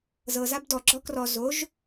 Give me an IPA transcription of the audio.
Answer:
z ɤ z a b d ɔ ɡ͡ǁ ɔ k r ɔ z o ʒ

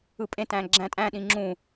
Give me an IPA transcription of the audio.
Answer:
ɯ pʼ ẽ t æ̃ ɡ͡ǁ æ̃ tʼ æ̃ ɗ ĩ ŋ͡ǁ ũ

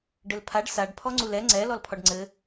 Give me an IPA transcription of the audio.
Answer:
ɖ ɘ l pʰ a ɖ s a ɖ pʰ ɔ ŋ͡ǀ u l ɛ ŋ͡ǀ ɛ l ɔ l pʰ ɔ ɖ ŋ͡ǀ ɘ

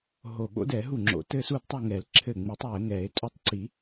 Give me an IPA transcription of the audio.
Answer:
ɦ o˧˩ ɓ o̰˦˥ d ɛ˨˩˦ ɦ u˥˩ ŋ͡ǁ o̰˨˩˦ t ɘ˥˧ s u˥˧ d tˤ o˥˧ ŋ ɛ˨˩˦ l ǁʰ ɘ˧˩ ŋ͡m u˨˩˦ tˤ w ɘ˨˩˦ ŋ ɛ˨˩˦ e̯ tʼ o˥˩ tˤ ǀ i˨˩˦

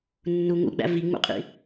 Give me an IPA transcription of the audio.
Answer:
nː u ŋ ṵ ɡ͡b æ̰ v i ŋ͡m ṵ qʼ ḭ

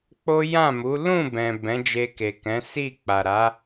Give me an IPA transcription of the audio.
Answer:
k͡p o˦ j ã˦˨ m u˨˦ l ũ˦˨ b ɛ̃˨ b ɛ̃˨˦ d͡ʒ e˧ k e˨ k ɛ̃˨˦ s i˦˨ k͡p a˨ ɾ a˨˦

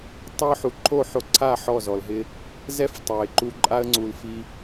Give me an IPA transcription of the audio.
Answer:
tˤ e˦ ʊ̯ ħ u˨ ǃʰ o˦˨ ħ o˧ ǀʰ a˦˨ ħ ɔ˦˨ z ɔ˨ l ɦ ɪ˦ | z ɛ˦ f tˤ a˨ ɪ̯ ǃ u˧ ǃʼ a˦ ə̯ ŋ͡ǀ u˧ l f i˦

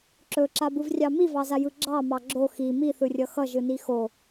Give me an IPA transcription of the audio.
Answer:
ǁ ɵ ǁ a b ɯ v rʲ ɑ m i v ɑ z a j ɯ ɡ͡ǁ ɑ m ɑ ɡ͡ǁ o x i m i θ ɯ rʲ ʌ x ʌ ʒ ɯ n i x o

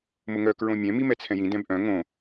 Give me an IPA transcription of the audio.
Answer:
m ʊ ŋ œ k ɹ õ mʲ ɛ̃ m i m ɛ t͡sʰ ɛ̃ j ĩ d ɛ̃ b ʔ œ̃ ŋ õ

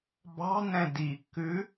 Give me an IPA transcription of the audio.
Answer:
b ɑ̤ n ɛ̃ d i kː ʉ

